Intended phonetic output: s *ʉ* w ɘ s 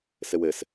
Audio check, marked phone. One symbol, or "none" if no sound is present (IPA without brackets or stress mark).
ɘ